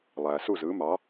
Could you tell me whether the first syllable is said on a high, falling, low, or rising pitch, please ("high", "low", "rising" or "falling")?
low